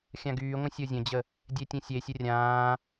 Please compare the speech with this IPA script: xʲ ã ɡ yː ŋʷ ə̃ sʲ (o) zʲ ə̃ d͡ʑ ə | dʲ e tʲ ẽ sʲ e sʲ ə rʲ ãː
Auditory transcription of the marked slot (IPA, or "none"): o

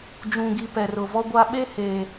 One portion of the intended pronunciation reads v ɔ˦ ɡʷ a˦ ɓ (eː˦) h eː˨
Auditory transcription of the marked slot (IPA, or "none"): e˦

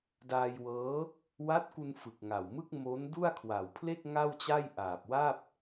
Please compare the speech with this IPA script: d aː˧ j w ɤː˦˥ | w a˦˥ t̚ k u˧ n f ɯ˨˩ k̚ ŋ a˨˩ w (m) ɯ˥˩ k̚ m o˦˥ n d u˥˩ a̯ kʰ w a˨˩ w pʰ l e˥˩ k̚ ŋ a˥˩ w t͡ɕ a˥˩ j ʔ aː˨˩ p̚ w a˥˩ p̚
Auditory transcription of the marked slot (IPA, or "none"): m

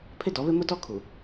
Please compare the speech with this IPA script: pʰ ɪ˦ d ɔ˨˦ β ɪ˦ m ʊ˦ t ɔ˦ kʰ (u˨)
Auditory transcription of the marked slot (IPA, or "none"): u˨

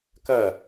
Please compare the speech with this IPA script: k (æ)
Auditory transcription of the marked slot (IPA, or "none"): ɐ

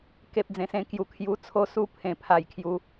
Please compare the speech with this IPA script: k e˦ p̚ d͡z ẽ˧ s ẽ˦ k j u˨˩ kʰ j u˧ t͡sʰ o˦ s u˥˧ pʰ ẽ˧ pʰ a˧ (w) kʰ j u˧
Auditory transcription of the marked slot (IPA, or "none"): j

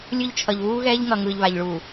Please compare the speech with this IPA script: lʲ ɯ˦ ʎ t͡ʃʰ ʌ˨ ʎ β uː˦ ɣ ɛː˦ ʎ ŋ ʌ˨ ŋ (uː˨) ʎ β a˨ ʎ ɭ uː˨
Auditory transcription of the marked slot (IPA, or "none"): ɯː˨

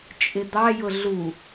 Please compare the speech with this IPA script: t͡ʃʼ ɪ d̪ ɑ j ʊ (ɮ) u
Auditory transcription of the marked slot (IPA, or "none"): ɮ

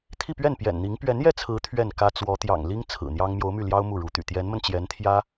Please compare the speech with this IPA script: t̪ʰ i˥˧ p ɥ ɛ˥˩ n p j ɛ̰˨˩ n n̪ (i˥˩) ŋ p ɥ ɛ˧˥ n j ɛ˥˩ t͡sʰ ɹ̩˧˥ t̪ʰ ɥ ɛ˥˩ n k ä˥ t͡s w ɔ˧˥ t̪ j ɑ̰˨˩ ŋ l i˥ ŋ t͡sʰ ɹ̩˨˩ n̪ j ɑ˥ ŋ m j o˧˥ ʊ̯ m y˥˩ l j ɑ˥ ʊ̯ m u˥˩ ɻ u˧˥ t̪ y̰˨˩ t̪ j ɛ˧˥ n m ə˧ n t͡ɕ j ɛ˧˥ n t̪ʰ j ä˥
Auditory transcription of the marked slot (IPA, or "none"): i˧˥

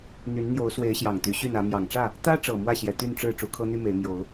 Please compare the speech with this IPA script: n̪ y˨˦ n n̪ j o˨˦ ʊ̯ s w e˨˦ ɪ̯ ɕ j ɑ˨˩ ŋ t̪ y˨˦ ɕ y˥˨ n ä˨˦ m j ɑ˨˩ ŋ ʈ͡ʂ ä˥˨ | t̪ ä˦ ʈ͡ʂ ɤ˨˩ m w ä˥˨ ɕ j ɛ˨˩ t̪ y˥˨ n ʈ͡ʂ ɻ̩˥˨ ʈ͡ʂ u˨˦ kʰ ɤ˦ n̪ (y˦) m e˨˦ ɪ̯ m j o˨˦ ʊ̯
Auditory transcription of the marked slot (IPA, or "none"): y˦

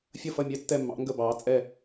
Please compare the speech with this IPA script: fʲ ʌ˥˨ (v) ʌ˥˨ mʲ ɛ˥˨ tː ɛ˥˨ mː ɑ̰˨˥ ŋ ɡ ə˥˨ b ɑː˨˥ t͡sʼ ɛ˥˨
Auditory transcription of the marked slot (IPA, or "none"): f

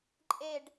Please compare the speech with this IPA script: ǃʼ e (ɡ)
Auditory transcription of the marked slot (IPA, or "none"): ɖ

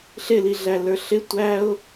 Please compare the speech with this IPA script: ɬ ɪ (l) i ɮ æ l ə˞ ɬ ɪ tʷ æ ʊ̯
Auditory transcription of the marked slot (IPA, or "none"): l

